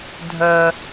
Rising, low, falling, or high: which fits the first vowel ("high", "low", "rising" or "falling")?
low